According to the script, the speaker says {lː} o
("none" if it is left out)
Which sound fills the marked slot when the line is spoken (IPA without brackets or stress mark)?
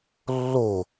lː